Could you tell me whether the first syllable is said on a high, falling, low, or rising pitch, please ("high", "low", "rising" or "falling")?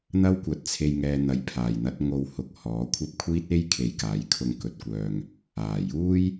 high